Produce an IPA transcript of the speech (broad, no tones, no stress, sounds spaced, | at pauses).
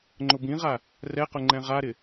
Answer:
ŋ͡ǃ ʊ b ĩ ʁ a | r ɛ q ʊ ŋ͡ǃ ɛ̃ ʁ a ɾ ɪ